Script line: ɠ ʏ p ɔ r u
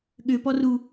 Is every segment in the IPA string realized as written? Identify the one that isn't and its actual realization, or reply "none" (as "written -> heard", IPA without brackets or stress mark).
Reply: none